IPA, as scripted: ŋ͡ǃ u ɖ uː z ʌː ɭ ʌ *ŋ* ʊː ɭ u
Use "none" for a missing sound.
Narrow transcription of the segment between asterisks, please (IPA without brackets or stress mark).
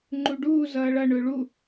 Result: ɳ